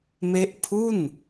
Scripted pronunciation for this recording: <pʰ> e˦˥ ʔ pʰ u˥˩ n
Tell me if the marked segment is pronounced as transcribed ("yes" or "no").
no